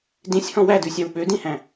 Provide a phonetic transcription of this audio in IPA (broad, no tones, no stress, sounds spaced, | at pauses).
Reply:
d ĩ sʲ h ɔ̃ w æ d ʉ sʲ ɑ w ɓ ø d ĩ h æ̃